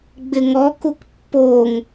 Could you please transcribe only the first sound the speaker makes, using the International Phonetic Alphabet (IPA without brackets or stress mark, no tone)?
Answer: ɡ͡b